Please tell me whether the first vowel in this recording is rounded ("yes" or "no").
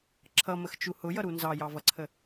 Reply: no